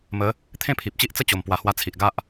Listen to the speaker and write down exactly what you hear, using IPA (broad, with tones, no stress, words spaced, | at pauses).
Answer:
mə˨˦ | t̪ʰẽ˥˧pʰi˨p̚t͡ɕi˦ʔ t͡sə˥˧t͡ɕo˨˩mpwa˨˩ hwa˧t͡sʰi˨ʔɡa˦ʔ